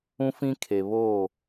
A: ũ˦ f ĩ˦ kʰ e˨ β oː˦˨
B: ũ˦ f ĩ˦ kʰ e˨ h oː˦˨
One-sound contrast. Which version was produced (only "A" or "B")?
A